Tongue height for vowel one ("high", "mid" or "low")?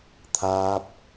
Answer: low